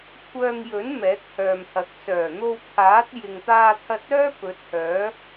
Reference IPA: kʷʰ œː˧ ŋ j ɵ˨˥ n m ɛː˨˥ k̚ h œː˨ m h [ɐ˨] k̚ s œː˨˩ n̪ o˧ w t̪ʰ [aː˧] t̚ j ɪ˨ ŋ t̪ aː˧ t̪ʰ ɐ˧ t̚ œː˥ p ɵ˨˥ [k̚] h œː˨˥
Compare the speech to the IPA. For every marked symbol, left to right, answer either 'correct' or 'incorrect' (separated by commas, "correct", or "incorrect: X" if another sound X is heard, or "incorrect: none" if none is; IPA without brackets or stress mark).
correct, incorrect: aː˨˥, incorrect: t̚